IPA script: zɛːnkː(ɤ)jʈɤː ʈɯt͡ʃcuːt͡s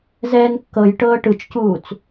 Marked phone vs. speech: correct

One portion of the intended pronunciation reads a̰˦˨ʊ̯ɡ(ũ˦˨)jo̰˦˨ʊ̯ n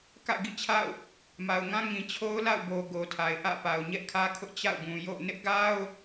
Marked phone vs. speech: incorrect: ũ˨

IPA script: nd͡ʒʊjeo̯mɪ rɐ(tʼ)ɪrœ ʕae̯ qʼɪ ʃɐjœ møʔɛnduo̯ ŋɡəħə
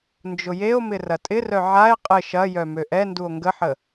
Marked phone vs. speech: correct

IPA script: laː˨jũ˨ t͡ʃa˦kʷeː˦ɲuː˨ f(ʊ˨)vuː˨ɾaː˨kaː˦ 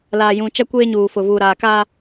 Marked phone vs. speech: correct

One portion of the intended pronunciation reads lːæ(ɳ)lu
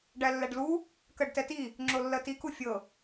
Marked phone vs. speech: incorrect: ɖ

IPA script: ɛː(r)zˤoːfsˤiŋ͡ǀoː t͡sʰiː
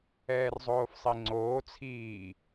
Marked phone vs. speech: correct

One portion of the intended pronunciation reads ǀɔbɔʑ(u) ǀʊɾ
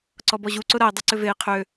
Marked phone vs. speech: correct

